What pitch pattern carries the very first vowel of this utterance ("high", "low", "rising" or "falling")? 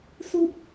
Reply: low